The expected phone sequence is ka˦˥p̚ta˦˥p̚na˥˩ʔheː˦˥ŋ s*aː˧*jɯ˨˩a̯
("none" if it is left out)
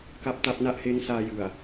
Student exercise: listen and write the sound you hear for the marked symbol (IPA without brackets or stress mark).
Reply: aː˧